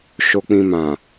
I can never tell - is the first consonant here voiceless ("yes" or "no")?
yes